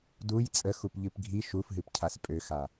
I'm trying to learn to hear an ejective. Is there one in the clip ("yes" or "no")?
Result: yes